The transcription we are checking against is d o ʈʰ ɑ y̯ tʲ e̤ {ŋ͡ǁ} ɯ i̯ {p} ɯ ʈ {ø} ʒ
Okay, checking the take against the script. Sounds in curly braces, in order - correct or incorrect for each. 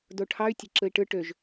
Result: incorrect, incorrect, correct

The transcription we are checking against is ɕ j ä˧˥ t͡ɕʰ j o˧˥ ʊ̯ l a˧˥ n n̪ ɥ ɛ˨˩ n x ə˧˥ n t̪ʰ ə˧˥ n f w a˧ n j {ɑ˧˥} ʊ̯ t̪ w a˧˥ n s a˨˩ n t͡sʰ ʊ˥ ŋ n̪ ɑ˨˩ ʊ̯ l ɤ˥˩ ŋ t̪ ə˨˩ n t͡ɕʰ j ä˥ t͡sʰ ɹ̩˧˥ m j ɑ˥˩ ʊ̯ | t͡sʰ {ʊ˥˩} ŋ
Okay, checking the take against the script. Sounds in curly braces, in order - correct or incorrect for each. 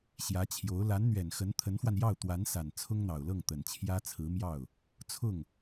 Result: incorrect, correct

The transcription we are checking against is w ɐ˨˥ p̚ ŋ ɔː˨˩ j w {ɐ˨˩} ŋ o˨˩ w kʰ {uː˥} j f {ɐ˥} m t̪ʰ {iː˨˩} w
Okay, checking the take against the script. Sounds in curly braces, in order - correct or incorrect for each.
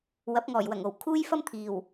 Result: correct, correct, correct, correct

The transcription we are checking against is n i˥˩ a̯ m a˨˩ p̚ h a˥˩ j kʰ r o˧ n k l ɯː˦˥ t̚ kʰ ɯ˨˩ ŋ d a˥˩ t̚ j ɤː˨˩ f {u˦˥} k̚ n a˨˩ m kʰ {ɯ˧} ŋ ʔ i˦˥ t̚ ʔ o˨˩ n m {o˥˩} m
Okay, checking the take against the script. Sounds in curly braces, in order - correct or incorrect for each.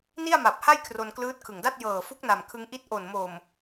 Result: correct, correct, incorrect

